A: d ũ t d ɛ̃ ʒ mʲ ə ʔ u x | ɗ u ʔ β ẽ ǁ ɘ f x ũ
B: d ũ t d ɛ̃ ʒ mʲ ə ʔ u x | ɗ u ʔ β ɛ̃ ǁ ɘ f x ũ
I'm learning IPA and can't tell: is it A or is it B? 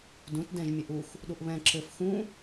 B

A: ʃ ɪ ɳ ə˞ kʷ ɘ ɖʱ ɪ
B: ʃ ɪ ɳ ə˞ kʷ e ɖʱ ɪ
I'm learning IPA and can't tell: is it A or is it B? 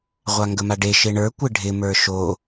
A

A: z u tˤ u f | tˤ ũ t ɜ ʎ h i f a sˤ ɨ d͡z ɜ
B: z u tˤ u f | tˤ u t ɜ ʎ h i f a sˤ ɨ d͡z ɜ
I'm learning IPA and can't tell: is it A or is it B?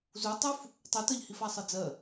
B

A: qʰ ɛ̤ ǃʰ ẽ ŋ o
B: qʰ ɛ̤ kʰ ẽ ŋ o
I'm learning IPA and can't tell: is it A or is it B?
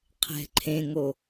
A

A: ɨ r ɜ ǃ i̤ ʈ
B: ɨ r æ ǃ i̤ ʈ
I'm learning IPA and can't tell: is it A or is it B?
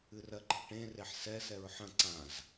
A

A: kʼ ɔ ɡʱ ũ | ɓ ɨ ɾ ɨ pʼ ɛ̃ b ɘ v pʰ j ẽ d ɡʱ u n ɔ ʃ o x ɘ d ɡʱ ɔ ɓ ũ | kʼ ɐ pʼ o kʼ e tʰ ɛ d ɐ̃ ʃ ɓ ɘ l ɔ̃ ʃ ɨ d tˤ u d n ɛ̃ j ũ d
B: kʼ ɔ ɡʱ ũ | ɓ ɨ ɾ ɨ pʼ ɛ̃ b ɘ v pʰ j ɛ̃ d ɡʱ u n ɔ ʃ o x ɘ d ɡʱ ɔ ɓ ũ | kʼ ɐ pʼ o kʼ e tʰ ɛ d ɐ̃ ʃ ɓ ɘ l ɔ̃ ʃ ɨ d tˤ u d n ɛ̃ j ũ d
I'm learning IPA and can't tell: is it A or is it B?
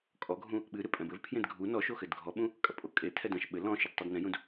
A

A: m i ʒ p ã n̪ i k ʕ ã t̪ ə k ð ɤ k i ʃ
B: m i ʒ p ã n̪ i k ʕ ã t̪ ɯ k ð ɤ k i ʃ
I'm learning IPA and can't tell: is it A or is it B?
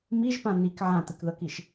B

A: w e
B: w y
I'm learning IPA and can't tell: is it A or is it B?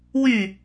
B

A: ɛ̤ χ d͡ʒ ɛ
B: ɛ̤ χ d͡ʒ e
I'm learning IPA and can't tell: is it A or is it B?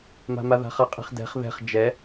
A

